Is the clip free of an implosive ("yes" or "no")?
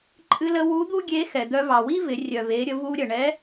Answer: yes